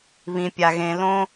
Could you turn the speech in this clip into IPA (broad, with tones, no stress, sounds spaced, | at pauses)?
β ĩ˩ pʲ a˩ ɣ ẽ˩ l õ˨